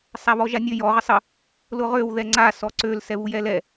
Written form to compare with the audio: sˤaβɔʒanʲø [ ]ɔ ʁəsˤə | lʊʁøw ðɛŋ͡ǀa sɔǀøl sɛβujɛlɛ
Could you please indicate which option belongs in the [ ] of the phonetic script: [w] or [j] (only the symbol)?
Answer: j